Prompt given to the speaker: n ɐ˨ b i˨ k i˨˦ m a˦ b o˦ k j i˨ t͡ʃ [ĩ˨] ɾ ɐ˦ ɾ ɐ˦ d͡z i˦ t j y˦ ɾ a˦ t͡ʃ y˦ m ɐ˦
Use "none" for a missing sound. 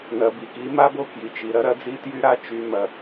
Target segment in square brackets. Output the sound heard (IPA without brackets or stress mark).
i˨